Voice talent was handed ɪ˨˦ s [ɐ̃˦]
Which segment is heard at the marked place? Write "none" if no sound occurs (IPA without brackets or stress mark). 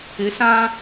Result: ã˦